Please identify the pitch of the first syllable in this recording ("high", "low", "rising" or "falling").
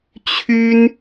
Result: high